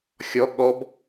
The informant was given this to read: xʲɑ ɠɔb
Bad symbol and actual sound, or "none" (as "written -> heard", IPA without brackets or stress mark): ɑ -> ɔ